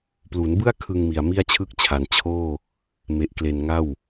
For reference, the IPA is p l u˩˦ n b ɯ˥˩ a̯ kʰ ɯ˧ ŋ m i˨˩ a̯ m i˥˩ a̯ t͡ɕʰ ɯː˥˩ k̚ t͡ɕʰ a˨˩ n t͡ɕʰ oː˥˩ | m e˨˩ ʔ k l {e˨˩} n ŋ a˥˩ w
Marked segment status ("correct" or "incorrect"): correct